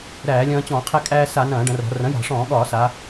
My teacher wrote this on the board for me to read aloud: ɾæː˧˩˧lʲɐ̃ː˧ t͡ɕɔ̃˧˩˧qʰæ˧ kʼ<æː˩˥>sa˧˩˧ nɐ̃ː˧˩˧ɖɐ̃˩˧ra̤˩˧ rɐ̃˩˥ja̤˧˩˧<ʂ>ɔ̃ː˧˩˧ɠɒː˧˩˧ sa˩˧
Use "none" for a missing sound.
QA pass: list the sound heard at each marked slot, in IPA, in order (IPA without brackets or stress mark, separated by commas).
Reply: æː˧, ʂ